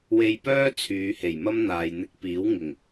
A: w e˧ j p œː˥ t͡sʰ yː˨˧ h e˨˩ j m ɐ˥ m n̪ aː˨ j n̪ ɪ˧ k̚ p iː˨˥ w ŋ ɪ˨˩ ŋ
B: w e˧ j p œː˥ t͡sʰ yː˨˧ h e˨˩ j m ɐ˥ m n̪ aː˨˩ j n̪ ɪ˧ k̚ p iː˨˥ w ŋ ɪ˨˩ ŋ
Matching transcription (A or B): A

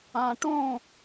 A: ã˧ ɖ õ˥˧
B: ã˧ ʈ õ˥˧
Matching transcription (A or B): B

